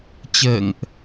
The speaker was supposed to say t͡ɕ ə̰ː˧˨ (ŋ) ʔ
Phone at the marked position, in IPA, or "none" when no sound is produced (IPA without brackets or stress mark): ŋ